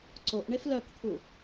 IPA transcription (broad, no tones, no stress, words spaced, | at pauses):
ǀoʔɳef lœkt̪ʰu